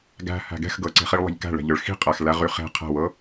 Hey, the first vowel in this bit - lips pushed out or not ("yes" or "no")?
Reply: no